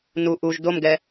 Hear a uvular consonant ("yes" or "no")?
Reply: no